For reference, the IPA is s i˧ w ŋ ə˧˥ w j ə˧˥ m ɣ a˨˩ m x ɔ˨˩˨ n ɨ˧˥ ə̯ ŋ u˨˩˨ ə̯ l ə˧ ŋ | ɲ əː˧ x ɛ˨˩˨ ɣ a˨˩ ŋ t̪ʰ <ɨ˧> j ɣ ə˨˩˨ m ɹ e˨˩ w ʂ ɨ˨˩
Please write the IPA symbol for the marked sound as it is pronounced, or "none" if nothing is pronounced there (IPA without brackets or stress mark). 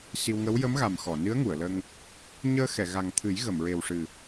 ɨ˨˩˦